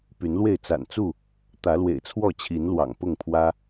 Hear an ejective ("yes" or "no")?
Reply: no